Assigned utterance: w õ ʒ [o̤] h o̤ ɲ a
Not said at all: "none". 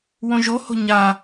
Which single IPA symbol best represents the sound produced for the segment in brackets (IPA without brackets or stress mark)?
o